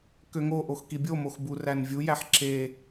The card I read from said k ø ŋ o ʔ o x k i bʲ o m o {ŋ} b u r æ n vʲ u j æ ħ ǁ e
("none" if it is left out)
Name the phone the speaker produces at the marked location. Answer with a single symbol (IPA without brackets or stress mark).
x